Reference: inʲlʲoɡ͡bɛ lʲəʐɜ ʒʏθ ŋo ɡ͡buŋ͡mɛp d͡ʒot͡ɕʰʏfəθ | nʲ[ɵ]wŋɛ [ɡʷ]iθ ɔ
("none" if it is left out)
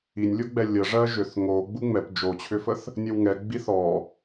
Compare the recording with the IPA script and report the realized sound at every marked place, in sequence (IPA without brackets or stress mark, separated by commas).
ə, ɡ͡b